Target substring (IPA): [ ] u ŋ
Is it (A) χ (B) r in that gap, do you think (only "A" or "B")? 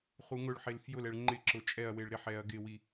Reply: A